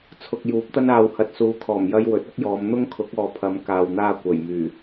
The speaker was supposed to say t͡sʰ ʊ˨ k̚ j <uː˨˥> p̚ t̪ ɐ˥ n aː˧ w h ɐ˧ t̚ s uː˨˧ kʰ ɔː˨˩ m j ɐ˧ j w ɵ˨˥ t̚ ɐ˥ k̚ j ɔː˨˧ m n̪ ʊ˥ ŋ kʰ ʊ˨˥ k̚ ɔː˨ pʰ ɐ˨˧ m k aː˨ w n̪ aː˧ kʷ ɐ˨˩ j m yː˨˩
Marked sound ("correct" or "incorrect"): correct